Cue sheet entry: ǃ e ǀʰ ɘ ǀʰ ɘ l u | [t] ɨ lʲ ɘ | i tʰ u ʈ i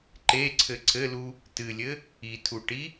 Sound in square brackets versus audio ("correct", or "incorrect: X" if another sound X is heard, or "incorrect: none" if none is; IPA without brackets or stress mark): correct